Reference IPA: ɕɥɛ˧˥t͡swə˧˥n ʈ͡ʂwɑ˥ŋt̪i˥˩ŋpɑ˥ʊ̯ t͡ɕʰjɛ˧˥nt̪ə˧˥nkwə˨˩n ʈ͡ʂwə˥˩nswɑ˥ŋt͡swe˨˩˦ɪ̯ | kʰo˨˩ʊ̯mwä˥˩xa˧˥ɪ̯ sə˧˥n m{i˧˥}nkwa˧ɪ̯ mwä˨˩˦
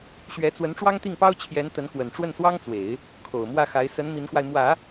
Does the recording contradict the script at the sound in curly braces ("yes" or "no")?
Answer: no